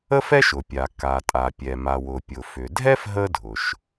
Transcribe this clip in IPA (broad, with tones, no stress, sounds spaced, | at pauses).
ə˥ f ɛ˥ ʃ ʊ˩ pʲ a˩ k a˩ tʼ a˩ pʲ ɛ˩ m a˩ w ʊ˩ pʲ ʊ˩ f ʏ˩ dʱ ɛ˥ f ɦ ə˥ dʱ ʊ˩ ʃ